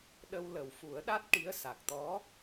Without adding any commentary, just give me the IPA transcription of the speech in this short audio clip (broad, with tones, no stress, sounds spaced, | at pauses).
ɗ ə˧ w l ə˨˩ w f u˨˩˦ ə̯ ɗ a˦˥ t̚ ʈ i˧˥ ə̯ s a˨˩ k̚ t̪ ɔ˧˥